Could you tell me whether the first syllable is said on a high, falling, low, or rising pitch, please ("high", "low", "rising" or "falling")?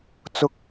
high